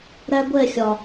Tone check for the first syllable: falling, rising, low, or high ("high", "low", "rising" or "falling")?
high